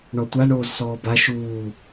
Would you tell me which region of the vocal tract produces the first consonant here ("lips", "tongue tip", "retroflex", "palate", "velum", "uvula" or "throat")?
retroflex